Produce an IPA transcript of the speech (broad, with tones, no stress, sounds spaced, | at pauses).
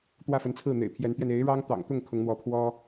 t̪ w ä˥˩ f ə˧˥ n t͡sʰ ɹ̩˥˩ n̪ ḛ˨˩ ɪ̯ pʰ j ɛ˧˥ n t̪ ɥ ɛ˧ n e˧˥ ɪ̯ ɻ ɑ˥ ŋ t̪ ɑ̰˨˩ ŋ t̪ ʊ˥˩ ŋ kʰ ʊ˧˥ ŋ n̪ w ɔ˧˥ pʰ w ɔ˥